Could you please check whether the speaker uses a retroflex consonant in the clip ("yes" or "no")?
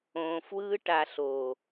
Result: yes